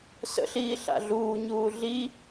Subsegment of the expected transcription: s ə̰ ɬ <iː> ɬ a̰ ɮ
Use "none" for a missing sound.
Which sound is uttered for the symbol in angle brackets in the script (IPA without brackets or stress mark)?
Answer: iː